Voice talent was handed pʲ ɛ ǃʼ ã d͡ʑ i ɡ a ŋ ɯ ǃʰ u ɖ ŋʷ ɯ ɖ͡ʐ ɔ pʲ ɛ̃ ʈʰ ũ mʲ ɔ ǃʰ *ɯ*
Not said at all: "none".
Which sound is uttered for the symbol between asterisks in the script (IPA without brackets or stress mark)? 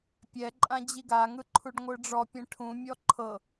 ɤ